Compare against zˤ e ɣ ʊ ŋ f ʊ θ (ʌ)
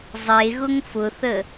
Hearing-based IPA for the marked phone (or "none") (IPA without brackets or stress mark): ə